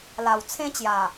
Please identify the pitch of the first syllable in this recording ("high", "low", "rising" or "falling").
low